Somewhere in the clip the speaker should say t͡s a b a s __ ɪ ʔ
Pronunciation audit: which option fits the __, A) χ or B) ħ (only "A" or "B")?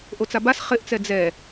A